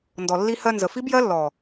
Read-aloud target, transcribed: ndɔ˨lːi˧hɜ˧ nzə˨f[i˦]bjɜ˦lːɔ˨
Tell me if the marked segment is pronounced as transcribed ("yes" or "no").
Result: yes